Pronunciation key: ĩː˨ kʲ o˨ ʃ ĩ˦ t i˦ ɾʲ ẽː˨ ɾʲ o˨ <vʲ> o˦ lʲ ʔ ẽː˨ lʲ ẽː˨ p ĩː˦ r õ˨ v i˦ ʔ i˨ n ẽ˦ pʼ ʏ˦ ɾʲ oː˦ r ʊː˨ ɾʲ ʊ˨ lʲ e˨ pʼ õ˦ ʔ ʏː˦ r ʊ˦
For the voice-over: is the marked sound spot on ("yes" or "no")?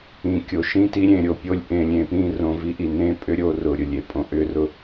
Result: no